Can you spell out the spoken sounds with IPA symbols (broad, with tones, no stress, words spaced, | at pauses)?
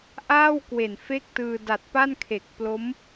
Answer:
ʔaː˥˩wkwe˨˩n fe˥˩k̚tɯː˧ da˨˩t̚pa˥˩nkʰe˨˩k̚ plo˦˥m